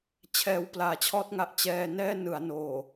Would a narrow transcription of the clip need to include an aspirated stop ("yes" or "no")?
yes